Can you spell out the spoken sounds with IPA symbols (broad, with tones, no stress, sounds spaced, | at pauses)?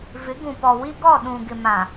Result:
v ɪ˨˦ ɡ ũ˨ p ɔ˨ w i˦ ɡ ɔ˦˨ ɗ ũ˨ ɡ ɪ˨ m ã˨